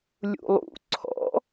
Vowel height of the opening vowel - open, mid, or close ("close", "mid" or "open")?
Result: close